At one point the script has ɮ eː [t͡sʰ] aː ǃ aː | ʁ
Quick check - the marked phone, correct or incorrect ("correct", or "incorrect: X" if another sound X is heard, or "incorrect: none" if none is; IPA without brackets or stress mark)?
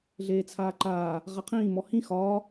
correct